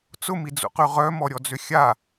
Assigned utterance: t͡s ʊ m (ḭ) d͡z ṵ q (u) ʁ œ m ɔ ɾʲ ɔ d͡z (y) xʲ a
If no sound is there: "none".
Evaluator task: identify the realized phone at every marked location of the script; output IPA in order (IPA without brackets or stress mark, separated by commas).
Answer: i, y, ʏ